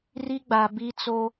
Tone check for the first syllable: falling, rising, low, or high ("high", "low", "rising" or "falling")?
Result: high